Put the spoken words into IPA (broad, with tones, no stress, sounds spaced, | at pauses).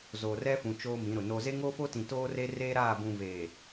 z oː˨ r ɛ˦ f ũ˨ t͡ʃ oː˦ m ĩ˨˦ ɾ ʊ˨ n o˦ z e˦ ŋ o˦ f o˦ t ĩ˨ t oː˦ r e˦ r eː˦ ɾ aː˦˨ b ũ˨ v eː˨